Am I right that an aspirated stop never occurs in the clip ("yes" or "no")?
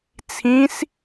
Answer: no